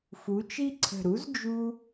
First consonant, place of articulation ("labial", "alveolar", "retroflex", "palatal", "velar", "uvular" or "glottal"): labial